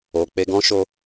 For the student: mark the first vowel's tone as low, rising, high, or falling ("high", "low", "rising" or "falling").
low